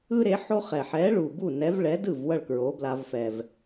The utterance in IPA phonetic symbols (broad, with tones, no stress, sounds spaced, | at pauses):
ɯ˥ ɾ e˨˥ ħ o˥ χ ɛ˨˩ ħ ɛ˨˥ ɭ u˨˩ b u˥˩ n ɛ˨˥ v ɭ ɛ˨˥ d ɯ˥˩ v w ʌ˥˩ ɭ k ɹ o˨˥ b l a˧ v f ɛ˨˩ v